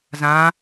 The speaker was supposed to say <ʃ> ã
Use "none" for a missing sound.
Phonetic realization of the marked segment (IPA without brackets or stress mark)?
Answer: z